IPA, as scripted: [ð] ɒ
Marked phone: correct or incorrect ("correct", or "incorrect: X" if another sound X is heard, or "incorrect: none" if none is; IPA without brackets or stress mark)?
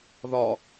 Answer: correct